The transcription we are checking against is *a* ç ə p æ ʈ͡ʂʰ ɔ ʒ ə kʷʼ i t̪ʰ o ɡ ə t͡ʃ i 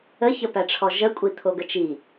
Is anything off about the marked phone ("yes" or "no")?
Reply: yes